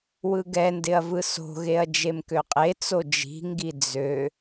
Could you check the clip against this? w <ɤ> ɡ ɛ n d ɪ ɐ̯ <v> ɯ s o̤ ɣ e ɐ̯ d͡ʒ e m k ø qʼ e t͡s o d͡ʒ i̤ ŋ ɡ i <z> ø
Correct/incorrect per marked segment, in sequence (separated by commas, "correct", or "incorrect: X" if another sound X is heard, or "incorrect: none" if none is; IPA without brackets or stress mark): incorrect: ɯ, correct, incorrect: d͡z